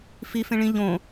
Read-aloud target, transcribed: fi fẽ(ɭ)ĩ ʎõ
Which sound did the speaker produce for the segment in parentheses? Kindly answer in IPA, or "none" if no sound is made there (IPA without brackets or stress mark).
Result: ɭ